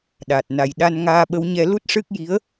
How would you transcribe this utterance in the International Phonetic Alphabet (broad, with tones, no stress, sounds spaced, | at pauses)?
ɗ a˨˩ t̚ n a˨˩ j ɗ a˧ n ŋ aː˧ ɓ ə˧˥ w ɲ ɛ˧ l u˦˥ t̚ ʂ ɨ˦˥ k̚ j i˧˥ ə̯